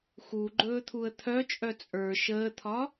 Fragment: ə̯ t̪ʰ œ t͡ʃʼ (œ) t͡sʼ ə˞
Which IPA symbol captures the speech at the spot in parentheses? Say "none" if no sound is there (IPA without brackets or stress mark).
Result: œ